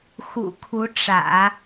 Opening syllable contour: low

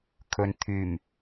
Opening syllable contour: low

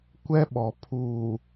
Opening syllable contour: high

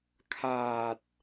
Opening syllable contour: low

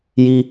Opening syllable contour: high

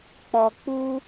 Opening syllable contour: low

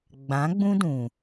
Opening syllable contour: rising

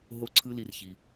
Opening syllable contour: high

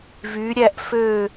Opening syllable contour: rising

